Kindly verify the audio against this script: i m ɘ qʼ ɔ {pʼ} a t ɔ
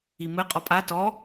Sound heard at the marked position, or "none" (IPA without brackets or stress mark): pʼ